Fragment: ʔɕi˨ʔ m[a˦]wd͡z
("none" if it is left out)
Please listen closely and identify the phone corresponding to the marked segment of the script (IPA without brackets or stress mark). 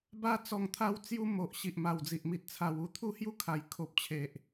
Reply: a˨˩